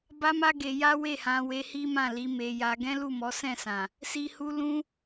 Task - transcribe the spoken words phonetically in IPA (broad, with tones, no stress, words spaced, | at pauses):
ba˦ma˦ ɡe˧ja˦ we˦˨hã˧we˧ hi˦mã˦˨ li˨˦me˧ja˧ ɡɛ̃˦lu˦˨mɔ˨˦ sɛ̃˦˨sã˨ | si˧hu˧ lũ˦